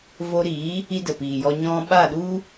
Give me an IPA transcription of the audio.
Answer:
v o˧ ɾ iː˨˦ | i˧ d ə˨ p iː˨ j ɔ˧ ɲ ɔ̃˧ ɓ a˦˨ ɗ u˦

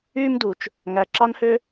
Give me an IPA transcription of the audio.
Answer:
yː˥ m d u˩ t͡ʃ | ŋ æ˩ ǁ ɑ˥ n h ø˥

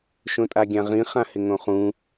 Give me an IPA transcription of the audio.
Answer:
ʃ õ tʼ a ɡʲ ã ʁ ĩ χ ã h ɪ ŋ õ χ ũ

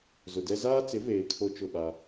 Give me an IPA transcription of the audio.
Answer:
z ʊ˨ d ɛ˦ z aː˦ t͡s ɪ˨˦ v eː˨ kʰ o˦ t͡ʃ ʊ˦˨ ɓ a˦

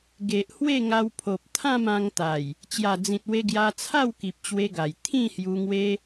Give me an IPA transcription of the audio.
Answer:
ɡ e˨ ʔ h w e˥˧ ŋ a˧ w pʰ o˨ p̚ t̪ʰ ã˥˧ m ã˧ ŋ t̪ a˨˩ j | t͡ɕ j a˨˩ d͡z ĩ˨ t̚ w e˧ ɡ j a˧ t͡sʰ a˥˧ w k i˨ p̚ t͡ɕ w e˧ ɡ a˨˩ j t̪ʰ ĩ˥˧ h j u˧ ŋ w e˦

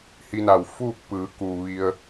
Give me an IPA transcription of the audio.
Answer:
h i˧ n a˩ w f uː˥˨ k̚ p ɯː˩˧ k uː˩ ʋ i˧ ə̯

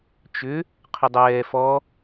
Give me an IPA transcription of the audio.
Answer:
t͡ʃ ʏ | qʰ ʏ dˤ ɛː f ɔ

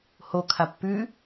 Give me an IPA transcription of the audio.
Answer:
h o kʰ a pː ʉ

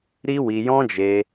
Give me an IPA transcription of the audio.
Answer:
ɾ i˦ w i˧ j ɔ̃˦ d͡ʒ e˧

